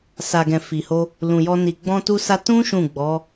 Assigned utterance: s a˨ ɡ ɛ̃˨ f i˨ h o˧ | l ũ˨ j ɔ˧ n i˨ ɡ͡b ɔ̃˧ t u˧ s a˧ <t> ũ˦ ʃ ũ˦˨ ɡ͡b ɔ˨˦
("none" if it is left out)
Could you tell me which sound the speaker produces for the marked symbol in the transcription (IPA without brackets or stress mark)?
t